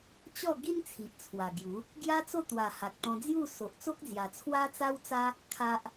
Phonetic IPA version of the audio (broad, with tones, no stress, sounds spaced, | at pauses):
t͡ɕ ɔ˥˧ ɡ i˦ n t͡sʰ i˨ ʔ t͡sʰ w a˨˩ ɡ j u˨˦ | ɡ j a˦ t͡s o˥˧ t̪ w a˨˩ h a˨ k̚ t̪ ɔ̃˧ d͡z j u˥˧ s o˨ ʔ t͡s o˦ k̚ d͡z j a˨˩ t͡sʰ w a˦ t͡s a˦ w t͡s a˦ | kʰ a˦ ʔ